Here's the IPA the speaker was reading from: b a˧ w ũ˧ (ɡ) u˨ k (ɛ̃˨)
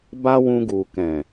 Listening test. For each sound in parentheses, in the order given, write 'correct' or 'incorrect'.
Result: correct, correct

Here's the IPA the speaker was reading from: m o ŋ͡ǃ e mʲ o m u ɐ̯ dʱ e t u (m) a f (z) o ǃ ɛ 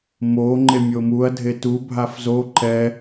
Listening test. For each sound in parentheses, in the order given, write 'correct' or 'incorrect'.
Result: incorrect: bʱ, correct

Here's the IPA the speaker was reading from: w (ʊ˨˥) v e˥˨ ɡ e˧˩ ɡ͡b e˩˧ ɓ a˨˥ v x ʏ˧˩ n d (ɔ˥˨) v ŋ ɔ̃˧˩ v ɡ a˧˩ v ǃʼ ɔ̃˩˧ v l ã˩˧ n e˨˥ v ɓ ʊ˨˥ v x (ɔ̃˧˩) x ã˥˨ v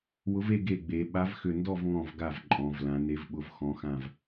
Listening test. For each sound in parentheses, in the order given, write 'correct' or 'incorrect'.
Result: correct, correct, incorrect: ɔ̃˨˥

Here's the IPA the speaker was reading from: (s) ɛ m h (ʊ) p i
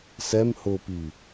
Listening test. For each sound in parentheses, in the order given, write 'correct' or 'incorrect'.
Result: correct, correct

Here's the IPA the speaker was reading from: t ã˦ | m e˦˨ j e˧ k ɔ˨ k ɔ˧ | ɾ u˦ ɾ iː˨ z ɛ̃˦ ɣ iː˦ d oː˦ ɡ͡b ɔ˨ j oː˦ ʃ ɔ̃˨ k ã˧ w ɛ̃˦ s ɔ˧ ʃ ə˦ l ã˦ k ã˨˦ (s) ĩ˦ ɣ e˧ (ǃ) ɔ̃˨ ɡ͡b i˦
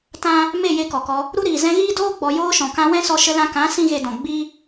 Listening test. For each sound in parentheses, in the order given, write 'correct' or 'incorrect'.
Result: correct, incorrect: d

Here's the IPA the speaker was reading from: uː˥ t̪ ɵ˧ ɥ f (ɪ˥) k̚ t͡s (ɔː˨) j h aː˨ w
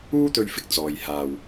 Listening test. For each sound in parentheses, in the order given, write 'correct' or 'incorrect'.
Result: incorrect: ɪ˧, correct

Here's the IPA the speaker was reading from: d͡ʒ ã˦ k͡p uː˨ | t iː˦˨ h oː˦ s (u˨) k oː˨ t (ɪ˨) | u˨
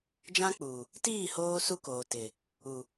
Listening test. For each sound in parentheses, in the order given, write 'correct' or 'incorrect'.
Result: incorrect: u˦, correct

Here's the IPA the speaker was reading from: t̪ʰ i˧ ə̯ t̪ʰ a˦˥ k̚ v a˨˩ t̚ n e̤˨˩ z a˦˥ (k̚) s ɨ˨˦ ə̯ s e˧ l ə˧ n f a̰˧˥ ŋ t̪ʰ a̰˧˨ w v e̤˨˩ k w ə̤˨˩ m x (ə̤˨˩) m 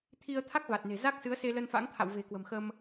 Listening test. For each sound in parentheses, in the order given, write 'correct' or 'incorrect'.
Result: correct, incorrect: ə˧

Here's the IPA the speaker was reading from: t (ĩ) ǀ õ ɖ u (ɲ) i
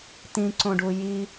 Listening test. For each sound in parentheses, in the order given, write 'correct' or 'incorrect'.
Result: correct, incorrect: j

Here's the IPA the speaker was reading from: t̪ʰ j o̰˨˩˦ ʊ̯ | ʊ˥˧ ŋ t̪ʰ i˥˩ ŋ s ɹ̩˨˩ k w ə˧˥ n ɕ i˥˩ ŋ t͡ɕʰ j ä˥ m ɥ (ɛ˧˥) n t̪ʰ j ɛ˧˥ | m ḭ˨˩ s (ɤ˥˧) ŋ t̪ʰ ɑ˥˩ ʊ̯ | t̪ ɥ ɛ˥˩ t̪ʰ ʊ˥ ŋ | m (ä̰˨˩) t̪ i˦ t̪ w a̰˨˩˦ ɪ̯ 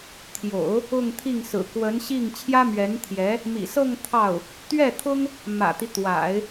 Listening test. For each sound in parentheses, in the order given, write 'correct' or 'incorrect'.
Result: correct, correct, correct

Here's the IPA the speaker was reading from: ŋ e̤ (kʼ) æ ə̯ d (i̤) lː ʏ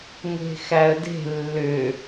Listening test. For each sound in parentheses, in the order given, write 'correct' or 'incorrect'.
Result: incorrect: x, incorrect: e̤

